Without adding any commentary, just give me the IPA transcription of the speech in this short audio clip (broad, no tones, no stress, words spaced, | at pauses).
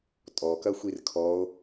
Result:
tʼɔkɐxʷir kʰɔo̯